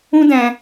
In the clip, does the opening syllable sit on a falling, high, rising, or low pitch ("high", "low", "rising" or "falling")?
high